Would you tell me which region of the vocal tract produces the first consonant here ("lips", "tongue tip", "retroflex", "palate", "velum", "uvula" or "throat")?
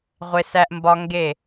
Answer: uvula